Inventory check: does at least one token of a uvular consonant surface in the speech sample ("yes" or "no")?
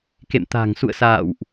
no